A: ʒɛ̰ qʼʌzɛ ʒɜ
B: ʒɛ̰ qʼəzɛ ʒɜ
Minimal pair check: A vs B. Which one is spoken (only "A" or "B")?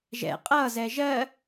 A